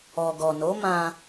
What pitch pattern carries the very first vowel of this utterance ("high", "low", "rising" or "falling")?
low